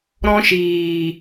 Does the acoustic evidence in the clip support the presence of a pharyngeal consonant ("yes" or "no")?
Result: no